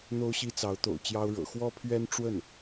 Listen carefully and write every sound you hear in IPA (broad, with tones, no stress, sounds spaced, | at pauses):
n̪ o˥ ʊ̯ ɕ i˥ t͡s ɑ˧˥ ʊ̯ t̪ o̰˨˩ ʊ̯ t͡ɕ j ɑ˥ ʊ̯ ɻ ɤ̰˨˩ x w ɔ˥ pʰ ɥ ɛ˥ n ʈ͡ʂ w ə˥˩ n